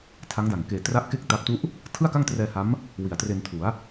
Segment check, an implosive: absent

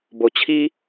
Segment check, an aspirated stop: present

